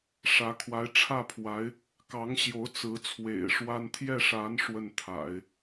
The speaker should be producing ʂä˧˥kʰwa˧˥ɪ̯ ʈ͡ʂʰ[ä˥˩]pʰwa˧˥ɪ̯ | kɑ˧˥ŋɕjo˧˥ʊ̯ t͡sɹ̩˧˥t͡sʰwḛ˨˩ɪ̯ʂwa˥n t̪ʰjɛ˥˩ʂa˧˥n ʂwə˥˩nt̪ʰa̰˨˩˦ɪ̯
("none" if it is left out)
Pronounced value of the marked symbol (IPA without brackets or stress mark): ä˥˩